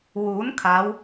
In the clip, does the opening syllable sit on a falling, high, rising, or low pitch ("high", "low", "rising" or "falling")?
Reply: rising